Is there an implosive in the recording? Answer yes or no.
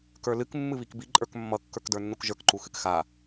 no